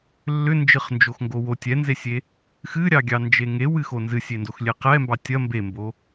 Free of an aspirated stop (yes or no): yes